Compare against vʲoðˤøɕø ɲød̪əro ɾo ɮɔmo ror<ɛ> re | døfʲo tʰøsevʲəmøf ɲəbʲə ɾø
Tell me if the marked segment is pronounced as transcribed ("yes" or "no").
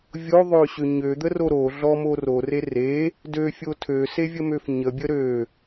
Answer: no